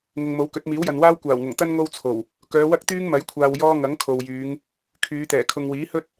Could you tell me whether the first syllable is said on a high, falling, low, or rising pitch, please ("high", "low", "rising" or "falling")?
low